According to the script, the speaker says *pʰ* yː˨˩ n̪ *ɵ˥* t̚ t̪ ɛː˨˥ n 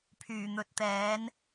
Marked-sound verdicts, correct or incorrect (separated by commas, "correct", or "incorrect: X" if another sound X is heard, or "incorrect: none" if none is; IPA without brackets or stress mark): correct, incorrect: ɵ˨˥